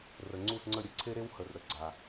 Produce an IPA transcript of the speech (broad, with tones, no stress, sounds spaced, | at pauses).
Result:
r ə˩ ŋ͡ǀ u˥˩ s ŋ͡ǀ ə˥˩ ɾʲ ə˥˩ ǀʰ e˥ ɾ e˥ w h ə˩ r ɾ ə˩ ɡ͡ǀ a˩